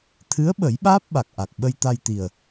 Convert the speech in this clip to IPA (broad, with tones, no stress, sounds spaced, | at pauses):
t̪ʰ ɨ˧˥ ə̯ ɓ ə˨˩˦ j ɓ aː˦˥ p̚ ɓ a˨˩ k̚ ʔ a˨˩ k̚ ɓ ə˧ j t̪ a˧ j t̪ i˨˩ ə̯